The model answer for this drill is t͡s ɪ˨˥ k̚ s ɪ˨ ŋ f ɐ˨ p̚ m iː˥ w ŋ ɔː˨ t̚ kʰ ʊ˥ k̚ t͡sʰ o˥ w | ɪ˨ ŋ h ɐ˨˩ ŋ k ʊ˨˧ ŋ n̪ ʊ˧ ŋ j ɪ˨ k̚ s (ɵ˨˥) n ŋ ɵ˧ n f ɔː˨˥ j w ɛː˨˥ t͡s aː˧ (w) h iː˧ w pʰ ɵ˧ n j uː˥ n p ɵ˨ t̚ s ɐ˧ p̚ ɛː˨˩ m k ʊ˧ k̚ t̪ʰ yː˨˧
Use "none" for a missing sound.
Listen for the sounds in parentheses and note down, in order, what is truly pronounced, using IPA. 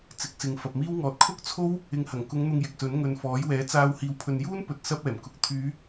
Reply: ɵ˨˥, w

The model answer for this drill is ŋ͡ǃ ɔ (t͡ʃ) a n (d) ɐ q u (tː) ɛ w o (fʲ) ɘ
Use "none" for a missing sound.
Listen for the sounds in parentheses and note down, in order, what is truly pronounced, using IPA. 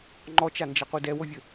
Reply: t͡ʃ, d͡ʒ, d, vʲ

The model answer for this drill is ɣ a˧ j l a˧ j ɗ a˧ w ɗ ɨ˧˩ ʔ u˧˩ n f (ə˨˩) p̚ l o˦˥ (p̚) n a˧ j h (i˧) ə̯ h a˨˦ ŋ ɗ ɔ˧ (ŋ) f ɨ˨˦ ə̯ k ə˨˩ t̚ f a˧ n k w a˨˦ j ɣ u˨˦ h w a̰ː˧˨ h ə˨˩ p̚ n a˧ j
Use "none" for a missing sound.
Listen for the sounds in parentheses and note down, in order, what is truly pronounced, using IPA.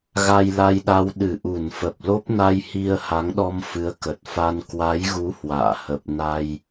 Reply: ə˨˩, p̚, i˧, m

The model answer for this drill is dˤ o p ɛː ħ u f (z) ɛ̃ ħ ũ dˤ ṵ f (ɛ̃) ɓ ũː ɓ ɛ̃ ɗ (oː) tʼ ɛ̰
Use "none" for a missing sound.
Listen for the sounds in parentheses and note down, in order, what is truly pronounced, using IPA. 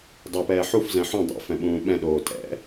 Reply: z, ɛ̃, oː

